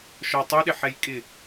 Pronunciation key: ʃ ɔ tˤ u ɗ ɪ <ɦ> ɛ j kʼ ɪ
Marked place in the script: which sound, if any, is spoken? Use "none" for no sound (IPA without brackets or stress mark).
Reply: ħ